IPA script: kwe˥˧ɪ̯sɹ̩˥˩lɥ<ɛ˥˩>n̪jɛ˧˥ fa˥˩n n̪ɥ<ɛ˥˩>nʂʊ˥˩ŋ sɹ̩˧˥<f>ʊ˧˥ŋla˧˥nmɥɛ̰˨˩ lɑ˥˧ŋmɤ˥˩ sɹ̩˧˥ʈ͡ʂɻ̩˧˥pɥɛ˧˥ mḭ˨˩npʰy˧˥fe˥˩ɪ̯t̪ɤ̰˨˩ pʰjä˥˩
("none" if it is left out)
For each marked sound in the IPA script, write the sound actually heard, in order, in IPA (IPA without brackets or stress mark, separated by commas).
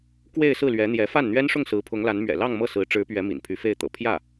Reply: ɛ˧˥, ɛ˥, pʰ